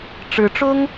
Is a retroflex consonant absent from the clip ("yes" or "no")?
no